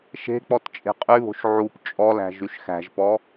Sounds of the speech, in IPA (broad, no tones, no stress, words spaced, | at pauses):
ʃe̤k͡pɔt t͡ʃʼe̤qʼyβo̤ʃ ʕup t͡ʃʼɔlæ̤ ʒyʃxæ̤ʒpɔ